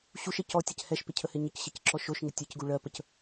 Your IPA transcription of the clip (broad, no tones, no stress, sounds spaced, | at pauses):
ɕ u ʃ e c ɔ tʲ ɛ c h ɛ ʃ p ɪ cʰ ə h ɪ ɲ ə c ɕ ɪ c ǁ ɔ ʃ o ʃ ŋ ɪ tʲ e c ɡ u ɭ ɜ p ə c